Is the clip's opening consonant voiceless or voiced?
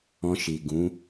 voiceless